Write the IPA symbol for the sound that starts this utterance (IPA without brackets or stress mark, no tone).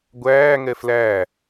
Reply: ɡʷ